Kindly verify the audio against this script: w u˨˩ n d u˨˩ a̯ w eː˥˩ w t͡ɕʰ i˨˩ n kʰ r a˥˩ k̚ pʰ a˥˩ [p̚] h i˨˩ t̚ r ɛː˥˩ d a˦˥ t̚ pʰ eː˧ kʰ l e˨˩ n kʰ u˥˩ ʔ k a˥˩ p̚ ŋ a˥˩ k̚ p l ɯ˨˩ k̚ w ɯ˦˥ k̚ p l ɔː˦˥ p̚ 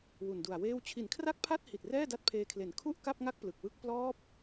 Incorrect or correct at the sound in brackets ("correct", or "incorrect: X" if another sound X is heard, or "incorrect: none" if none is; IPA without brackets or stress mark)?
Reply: incorrect: t̚